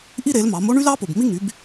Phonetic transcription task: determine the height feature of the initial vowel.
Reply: high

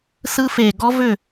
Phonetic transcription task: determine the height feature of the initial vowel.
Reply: high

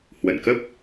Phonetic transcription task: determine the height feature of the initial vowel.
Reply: mid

